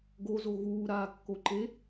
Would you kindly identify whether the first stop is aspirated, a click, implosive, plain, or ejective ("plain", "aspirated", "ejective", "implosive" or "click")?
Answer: plain